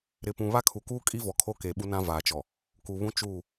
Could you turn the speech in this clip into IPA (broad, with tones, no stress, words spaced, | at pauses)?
ɾɪ˨pũ˨ βa˦kʰu˨kuː˦kʼi˦ vɔ˨kʰo˦ keː˨ɓu˦nã˦ vaː˨t͡ʃɔ˨ | ku˨βũ˦ t͡ʃuː˦˨